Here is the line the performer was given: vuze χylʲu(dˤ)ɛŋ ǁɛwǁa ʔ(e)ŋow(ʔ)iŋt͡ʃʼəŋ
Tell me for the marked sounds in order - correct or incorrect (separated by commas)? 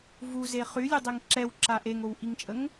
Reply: correct, correct, correct